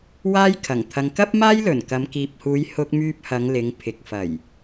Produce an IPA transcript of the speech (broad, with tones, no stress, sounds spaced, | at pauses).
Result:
w aː˥ j kʰ ɐ˨˩ ŋ t̪ʰ ɐ˨ ŋ k ɐ˥ p̚ m aː˥ j l ɵ˨˩ n k ɐ˨˧ m k iː˨ p̚ h uː˨˧ j h ʊ˧ k̚ m yː˧ p̚ h ɐ˨˧ ŋ l ɪ˨˧ ŋ pʰ ɪ˨ k̚ f ɐ˨˩ j